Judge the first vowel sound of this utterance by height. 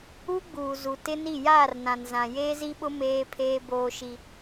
high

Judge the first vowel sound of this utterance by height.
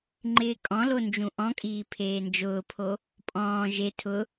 high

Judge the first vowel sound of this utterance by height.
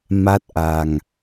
low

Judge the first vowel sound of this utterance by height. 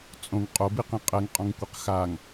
mid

